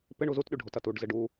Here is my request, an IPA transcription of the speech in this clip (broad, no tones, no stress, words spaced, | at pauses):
pɪɳ uzutɗy ɖʱotɐtuɖzɪɖ u